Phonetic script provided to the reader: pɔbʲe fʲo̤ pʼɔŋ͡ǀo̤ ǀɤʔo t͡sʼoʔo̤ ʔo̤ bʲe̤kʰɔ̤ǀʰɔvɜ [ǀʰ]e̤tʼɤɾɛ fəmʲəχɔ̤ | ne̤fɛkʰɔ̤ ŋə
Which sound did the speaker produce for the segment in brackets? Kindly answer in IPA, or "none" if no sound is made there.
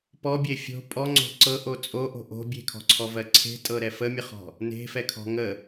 ǀʰ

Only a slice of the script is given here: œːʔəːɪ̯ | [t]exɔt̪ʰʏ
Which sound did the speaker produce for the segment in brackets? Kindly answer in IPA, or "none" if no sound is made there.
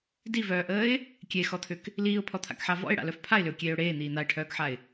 kʲ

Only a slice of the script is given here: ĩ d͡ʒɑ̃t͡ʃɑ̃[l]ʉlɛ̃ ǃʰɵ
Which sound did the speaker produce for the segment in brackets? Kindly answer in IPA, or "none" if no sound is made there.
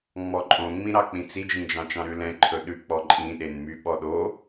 ɾ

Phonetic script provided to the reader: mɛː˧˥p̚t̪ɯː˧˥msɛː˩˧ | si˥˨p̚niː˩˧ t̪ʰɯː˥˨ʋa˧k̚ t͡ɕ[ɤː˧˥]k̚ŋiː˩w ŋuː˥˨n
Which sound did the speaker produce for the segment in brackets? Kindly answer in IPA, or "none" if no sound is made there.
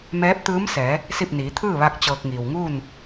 ɤː˧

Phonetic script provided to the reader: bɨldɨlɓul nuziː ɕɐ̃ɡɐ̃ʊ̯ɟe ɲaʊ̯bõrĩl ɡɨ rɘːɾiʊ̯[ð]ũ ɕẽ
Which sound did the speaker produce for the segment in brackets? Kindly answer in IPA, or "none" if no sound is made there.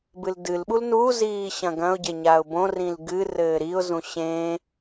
z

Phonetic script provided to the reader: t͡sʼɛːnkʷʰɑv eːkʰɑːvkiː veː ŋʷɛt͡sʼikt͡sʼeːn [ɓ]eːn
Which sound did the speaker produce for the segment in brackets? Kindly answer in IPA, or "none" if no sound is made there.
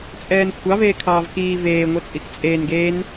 ɡ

